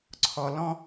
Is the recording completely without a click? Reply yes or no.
no